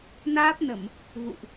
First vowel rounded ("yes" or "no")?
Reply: no